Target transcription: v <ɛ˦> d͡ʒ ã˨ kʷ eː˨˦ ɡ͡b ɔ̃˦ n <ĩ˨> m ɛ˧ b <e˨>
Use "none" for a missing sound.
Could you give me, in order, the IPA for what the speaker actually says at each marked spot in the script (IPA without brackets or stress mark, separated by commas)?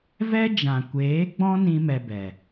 ɛ˦, ĩ˦, ɛ˨